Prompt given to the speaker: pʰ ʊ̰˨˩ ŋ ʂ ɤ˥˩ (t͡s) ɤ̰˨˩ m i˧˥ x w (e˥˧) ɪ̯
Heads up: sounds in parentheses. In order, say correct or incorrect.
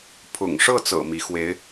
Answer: correct, incorrect: e˧˥

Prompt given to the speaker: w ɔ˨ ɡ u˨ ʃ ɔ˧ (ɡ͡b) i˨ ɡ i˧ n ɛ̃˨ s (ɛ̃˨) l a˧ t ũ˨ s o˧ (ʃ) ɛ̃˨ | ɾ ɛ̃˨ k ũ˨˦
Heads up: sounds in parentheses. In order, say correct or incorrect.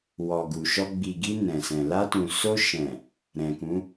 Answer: correct, correct, correct

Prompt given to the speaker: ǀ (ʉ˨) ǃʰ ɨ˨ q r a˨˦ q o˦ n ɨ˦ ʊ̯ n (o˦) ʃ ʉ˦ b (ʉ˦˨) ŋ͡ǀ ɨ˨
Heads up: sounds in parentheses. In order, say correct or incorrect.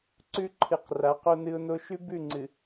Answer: incorrect: ʉ˦, correct, correct

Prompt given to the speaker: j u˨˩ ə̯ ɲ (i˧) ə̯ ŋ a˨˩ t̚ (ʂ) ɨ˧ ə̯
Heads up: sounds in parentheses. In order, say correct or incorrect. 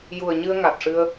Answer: incorrect: ɨ˧, correct

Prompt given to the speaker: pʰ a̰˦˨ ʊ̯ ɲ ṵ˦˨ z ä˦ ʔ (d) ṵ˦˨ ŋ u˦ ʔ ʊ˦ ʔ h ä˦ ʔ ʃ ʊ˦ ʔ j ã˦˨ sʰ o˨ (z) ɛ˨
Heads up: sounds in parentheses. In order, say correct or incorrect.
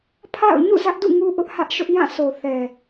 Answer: correct, incorrect: θ

